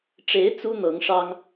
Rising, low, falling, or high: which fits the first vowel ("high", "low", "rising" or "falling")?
rising